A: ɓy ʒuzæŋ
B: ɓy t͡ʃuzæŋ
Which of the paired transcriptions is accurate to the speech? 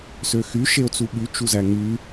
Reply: B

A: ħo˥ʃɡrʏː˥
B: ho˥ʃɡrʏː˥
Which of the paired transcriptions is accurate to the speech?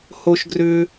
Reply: B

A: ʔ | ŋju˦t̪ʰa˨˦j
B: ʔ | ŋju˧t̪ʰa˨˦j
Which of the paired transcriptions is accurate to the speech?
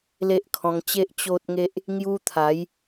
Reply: A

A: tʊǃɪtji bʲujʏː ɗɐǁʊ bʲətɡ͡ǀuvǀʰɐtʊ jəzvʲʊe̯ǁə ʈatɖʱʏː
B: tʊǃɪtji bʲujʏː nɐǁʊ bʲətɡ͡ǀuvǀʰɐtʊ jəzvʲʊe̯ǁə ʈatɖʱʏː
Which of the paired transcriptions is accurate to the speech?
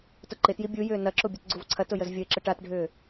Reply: B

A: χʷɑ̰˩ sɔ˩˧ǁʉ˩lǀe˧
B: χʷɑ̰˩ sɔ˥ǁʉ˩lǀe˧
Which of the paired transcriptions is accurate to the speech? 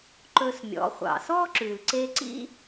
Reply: B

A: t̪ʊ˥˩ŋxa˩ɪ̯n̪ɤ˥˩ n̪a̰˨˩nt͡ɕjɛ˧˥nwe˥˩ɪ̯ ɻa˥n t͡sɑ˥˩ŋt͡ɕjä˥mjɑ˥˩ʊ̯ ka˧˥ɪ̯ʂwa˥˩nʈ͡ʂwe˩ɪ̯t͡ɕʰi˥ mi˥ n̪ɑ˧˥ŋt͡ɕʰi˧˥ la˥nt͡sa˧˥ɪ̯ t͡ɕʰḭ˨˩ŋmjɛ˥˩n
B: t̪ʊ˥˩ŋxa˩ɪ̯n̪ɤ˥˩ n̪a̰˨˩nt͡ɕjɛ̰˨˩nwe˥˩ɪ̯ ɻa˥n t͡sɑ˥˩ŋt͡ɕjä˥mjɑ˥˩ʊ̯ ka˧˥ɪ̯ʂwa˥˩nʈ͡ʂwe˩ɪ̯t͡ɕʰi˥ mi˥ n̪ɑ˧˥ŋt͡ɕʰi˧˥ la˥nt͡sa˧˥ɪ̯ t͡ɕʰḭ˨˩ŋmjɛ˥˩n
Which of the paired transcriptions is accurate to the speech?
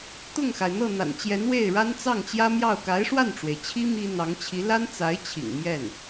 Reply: A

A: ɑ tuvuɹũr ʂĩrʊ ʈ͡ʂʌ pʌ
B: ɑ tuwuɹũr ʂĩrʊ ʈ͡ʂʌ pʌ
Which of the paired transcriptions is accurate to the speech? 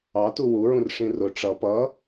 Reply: B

